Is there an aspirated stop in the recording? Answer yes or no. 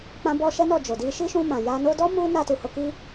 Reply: no